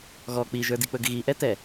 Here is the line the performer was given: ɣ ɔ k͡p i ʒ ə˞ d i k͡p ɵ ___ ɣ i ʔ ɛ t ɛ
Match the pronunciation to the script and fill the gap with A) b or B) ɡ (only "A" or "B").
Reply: B